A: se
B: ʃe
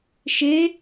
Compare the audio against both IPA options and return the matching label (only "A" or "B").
B